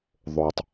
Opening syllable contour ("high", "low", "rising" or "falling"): low